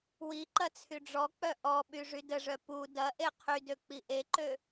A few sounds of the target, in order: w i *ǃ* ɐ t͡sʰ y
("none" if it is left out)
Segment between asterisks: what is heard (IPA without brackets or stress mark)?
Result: ǃ